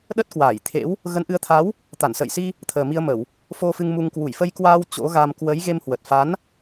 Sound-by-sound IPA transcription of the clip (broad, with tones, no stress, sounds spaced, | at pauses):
ɗ ə˦˥ t̚ k w aː˧˩ j t̪ʰ ḛ˧˥ w | ɣ ə˨˦ n ʔ ɨ˨˦ ə̯ t̪ʰ a˨˦ w | t̪ a˧˩ n s ə̰ː˧˨ j s i˧ | t̪ʰ əː˨˩ m i˧ ə̯ m ə˧˩˨ w | f o˧ f ɨ˧ ŋ m u˧ ŋ k w u˧˩ j f ə˧ j k w aː˧ w t͡ɕ o̰˧˥ ɣ a˧ m k w ə˨˦ j ɣ e˧ m h w ə˨˩ t̚ f a˨˦ n